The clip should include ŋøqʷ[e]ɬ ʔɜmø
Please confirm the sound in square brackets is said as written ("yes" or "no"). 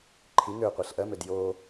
yes